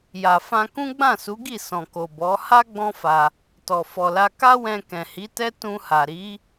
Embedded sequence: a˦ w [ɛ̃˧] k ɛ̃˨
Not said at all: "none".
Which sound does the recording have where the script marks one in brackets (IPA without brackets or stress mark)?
ɛ̃˧